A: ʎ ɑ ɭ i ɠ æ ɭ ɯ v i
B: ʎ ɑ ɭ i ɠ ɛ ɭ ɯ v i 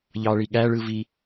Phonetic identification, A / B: A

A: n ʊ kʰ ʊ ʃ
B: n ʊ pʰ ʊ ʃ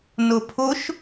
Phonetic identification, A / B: B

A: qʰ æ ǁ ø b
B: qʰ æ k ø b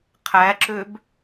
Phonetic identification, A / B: A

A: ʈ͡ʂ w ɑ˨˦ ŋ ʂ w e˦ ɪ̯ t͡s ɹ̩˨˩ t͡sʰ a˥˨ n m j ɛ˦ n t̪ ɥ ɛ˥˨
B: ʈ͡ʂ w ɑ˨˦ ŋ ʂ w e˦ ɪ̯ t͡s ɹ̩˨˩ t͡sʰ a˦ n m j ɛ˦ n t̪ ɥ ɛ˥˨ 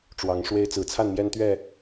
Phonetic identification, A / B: A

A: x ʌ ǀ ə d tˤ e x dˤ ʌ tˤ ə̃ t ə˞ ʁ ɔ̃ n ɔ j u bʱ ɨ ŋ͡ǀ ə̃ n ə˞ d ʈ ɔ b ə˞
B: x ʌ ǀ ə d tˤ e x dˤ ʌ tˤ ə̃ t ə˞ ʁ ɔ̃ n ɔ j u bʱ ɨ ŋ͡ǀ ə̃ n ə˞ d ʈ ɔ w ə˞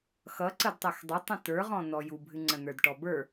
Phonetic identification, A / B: A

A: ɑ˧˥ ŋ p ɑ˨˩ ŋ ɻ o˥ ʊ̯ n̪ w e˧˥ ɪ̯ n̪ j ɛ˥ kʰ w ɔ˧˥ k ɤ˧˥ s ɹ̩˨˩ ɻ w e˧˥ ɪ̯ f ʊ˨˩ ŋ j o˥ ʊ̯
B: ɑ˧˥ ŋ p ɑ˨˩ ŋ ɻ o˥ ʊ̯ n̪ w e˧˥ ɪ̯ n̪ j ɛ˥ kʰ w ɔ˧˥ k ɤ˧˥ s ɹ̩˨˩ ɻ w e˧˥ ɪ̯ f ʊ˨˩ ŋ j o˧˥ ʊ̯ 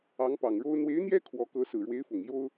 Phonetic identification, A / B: A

